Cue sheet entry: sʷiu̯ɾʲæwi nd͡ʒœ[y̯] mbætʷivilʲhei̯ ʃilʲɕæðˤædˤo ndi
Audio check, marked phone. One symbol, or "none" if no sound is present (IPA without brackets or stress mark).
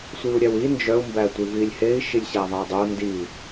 u̯